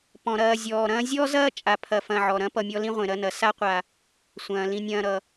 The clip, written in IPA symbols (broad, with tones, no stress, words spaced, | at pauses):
pɔ̃˩ɾɐː˨zʲɔː˩ ɾɐ̃ː˦zʲɔ˥zɐː˥ t͡ʃʼa˨pʰɐ˨fɐ̃˨ʕɔ˩ ɾɐ̃˥ pʌ˨mʲɔ˦lĩ˥ʁʷẽ˩ ɾɐ˦nɐ˩ sa˥qʷa˨ | sʷɐ̃ː˩lĩ˨nʲɐ̃ː˨ ɾʌ˩